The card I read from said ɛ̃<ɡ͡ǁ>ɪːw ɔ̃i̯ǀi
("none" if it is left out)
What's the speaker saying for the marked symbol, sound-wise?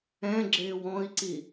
ɡ͡ǁ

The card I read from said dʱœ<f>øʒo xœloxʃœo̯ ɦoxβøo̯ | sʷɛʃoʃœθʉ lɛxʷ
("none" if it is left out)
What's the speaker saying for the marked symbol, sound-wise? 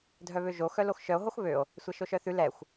β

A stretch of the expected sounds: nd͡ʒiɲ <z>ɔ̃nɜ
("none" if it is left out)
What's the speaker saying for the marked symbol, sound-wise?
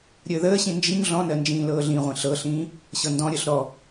ɮ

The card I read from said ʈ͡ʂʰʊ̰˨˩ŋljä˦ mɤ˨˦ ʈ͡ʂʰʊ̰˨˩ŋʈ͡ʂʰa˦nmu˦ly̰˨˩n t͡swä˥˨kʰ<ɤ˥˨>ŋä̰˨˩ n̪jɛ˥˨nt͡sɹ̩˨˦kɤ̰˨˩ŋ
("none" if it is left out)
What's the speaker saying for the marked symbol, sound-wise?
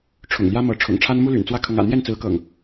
ɤ˨˦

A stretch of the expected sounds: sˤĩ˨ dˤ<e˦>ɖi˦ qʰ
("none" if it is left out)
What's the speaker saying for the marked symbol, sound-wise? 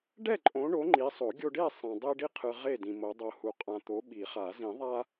e˦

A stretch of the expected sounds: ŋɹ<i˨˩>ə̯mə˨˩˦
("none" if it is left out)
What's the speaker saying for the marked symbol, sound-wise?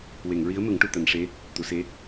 i˧˥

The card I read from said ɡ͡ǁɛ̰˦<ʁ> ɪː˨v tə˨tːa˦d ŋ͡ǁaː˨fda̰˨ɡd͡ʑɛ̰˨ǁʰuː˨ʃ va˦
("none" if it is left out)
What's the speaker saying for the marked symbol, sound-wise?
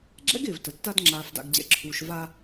ɡ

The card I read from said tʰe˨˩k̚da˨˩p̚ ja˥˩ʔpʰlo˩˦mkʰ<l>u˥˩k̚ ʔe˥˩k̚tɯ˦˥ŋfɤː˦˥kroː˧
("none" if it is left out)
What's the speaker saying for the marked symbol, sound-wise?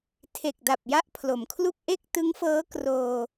l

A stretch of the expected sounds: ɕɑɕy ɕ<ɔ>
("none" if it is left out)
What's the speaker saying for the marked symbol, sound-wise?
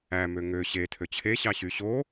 o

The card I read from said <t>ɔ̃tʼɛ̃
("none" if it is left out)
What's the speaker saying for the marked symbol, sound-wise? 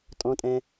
tʼ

